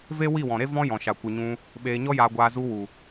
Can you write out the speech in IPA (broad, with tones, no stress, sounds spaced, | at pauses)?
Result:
v e˦ w i˦˨ w ɔ̃˨ ɾ e˦ v ɔ̃˦ j ɔ̃˨ ʃ a˨ kʷ ɨ˨ ɲ ũ˧ | ɓ eː˧ ɲ ɔ˦ j aː˧ ɡʷ aː˧ z u˧ w u˨